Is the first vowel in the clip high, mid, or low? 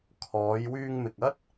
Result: mid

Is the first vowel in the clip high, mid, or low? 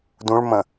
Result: high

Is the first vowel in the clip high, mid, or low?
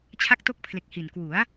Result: low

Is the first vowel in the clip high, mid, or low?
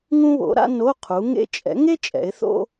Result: high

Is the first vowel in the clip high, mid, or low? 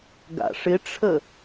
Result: low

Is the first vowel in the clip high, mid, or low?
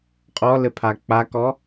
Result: mid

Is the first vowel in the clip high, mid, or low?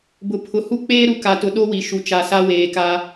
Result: high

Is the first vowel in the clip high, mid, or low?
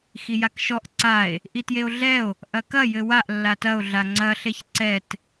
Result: high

